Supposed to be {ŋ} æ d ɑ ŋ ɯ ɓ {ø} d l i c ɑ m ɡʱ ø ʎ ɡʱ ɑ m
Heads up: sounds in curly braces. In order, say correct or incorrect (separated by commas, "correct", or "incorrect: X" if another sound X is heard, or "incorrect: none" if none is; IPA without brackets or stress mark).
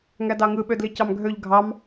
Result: correct, correct